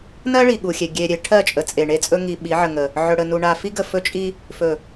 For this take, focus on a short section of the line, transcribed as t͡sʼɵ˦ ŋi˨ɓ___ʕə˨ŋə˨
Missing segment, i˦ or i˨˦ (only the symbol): i˨˦